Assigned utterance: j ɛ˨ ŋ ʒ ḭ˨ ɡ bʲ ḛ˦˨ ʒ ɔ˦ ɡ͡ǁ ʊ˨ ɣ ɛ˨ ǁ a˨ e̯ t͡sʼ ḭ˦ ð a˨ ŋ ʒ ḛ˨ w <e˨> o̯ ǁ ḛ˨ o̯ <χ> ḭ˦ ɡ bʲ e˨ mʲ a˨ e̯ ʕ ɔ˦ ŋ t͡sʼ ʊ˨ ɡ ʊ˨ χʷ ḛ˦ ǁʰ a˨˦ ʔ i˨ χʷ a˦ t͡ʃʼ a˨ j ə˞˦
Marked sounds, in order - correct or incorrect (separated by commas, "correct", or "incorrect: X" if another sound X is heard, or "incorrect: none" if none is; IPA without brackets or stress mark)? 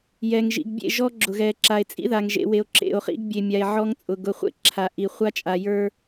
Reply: correct, correct